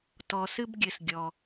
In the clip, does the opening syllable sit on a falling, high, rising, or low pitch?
low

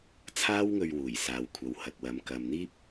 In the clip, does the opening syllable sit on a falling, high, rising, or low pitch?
high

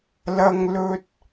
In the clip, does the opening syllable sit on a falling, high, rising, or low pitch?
high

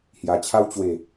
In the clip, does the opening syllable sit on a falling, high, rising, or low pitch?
low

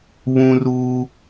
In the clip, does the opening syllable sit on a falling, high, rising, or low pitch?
high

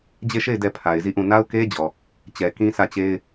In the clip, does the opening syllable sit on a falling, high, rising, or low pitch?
falling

